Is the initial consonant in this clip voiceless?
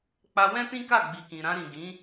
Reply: yes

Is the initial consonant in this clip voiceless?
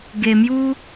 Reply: no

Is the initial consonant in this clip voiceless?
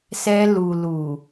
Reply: yes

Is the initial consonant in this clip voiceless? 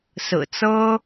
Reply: yes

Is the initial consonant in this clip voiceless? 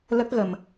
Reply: no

